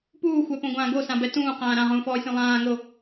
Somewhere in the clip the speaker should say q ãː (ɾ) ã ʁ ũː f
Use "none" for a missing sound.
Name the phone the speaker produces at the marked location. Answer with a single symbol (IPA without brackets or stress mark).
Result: ɾ